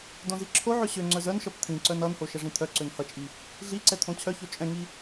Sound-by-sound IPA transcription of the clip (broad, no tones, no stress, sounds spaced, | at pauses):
d õ z i ǁʰ o ʕ ø ɕ ø ŋ͡ǀ œ z œ n ʃ ʌ p t̪ʰ ĩ ǀ œ n ʌ n h o ʃ ɛ ʐ ĩ t̪ʰ œ ǀ ø n h ʌ t͡ʃʼ i | ɮ i ǀ ɛ t̪ʰ õ t͡ɕʰ œ ç o t͡ʃʼ ɛ̃ ŋ i